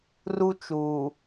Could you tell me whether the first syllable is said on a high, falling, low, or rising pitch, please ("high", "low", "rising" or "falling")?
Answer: high